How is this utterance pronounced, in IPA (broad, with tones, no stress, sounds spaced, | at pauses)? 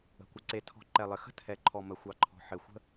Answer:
ə̤˨ kʷ ɪ˨ ǀ e˨ tʰ ɔ̤˨ ǃ ɛ˨ lˠ ɘ˨ x ə̤˦ tʰ ɛ˨ ǃʰ ɔ˨ m ə˨ xʷ ɑ˨ ǃʰ ɔ̤˨ ħ ɘ˨ xʷ ə̤˦